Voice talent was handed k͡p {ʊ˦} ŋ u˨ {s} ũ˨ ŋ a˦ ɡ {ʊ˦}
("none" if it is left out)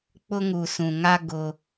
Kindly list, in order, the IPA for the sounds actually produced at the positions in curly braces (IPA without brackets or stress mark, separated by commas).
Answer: ʊ˦, s, ʊ˦